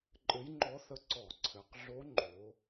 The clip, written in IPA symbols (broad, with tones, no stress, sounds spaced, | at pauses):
ǃʼ ɘ˧˥ j ŋ͡ǃ ɔ˧˥ θ ə˧˥ ǀ ɔ˧˩˧ ǀʰ ɘ˩˧ q ɮ o˧˥ ŋ͡ǃ o˩˧